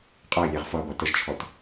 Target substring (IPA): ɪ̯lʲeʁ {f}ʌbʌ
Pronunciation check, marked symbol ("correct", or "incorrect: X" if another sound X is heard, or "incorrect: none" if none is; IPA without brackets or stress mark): correct